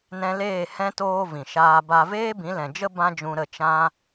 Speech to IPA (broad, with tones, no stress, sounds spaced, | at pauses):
n ɛ̃˧ l eː˦˨ h ɛ̃˧ t oː˧ v ĩ˨ ʃ aː˧ b a˧ v eː˦ b ĩ˨˦ l ɛ̃˨ d͡ʒ ə˦ b ã˦ d͡ʒ ũ˧ ɾ ə˦˨ t͡ʃ ã˦